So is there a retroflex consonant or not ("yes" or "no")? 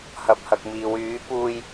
no